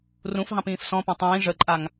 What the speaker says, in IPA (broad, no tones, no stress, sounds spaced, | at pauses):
r ũ f ɦ ɑ̃ p ĩː f s ɔ̃ p ɛ̃ tˤ ĩː ʐ ə ǃʼ a ŋ